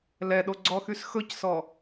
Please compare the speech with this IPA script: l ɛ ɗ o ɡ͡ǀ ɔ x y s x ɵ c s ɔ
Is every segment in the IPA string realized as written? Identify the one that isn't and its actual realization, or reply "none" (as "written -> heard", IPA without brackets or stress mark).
none